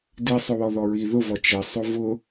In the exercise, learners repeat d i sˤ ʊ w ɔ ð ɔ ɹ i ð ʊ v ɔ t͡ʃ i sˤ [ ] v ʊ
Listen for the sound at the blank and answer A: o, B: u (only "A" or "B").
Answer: A